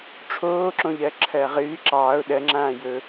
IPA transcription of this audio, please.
ʈ͡ʂʰ oː ǁ õ ʎ ɜ ǁʰ ɜː ʁ ɨː ǁ ɑː ʊ̯ ɗ ɜ ŋ͡ǁ ãː j ɵ

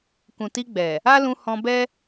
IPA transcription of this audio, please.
k ũ˨ t i˧ ɡ͡b ɛ˨ | a˦ l ũ˧ h ɔ̃˧ b ɛ˦

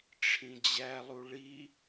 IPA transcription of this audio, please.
ʈ͡ʂʰ ĩ d͡ʑ æ lˠ u ɭ i

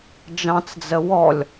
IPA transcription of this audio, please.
d͡ʒ ɑ̃ t͡s d͡z ə w ɔ lʲ

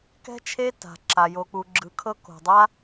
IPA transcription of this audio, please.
k ɛ̤˦ t͡ʃʰ e˦ t a̤˧ ǁ a˧ j o˧ k͡p u˧ ɡ͡ǁ ɯ˧ kʰ ɤ˦ k o̤˨ dˤ a˧

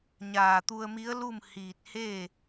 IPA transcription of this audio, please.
ɲ aː˧˩ t̪ u˧ ə̯ m i˧˥ ə̯ l u˥˨ m h iː˧˩ t̚ h eː˥˨

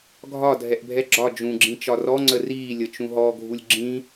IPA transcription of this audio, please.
ɡʱ ɒ dʱ ɛ ʔ bʱ ɛ ɡ͡ǁ ɒ d͡ʒ ũ ɡ͡ǁ ĩ t͡ʃ ɒ r ɔ ŋ͡ǀ ə r iː lʲ ə t͡ʃ ũ ɦ ɔ ɡʱ u lʲ ɡ͡ǁ ĩ

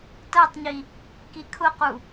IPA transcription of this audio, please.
t ɜ tˤ ɲ i | k i kʰ ʊ q u

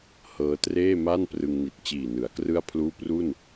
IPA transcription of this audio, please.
h ɤː˦˥ t r eː˥˩ m a˥˩ n p r ɯ˧ ŋ n i˨˩ t̚ t͡ɕ iː˨˩ n ɯ˩˦ a̯ k r ɯ˥˩ a̯ pʰ l uː˥˩ p r u˥˩ n

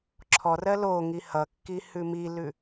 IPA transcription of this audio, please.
ǁʰ ɔ r ɜ l o ŋ i h ʌ kː i h ʉ m i l ʉ

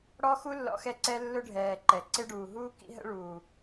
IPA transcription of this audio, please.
ɽ ɔ˦ x u˦ lː ɔ̰˦ x ɛ˦ ǀ ɛ˦ lː ʊ˦ ɖʱ ɛː˨ ǃ ɛ˨ ǀ ɪ˦ ɖ uː˨ ɦ uː˦ k ḭ˦ ɦ ə̰˦ ɭ uː˨

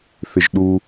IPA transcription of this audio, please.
θ ɪ ʒ ɗ u

